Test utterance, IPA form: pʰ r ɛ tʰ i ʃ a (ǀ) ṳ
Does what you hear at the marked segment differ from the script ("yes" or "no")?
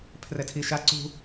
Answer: no